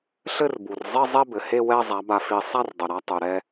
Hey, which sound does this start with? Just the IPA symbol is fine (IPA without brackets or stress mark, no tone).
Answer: ɬ